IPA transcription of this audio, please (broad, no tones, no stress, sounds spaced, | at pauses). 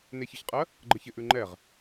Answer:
n e ç ɪ ç qʼ ɜ | ɡ͡ǃ ə ç ɪ ʔ ʉ ŋ͡ǃ ɛ ʁ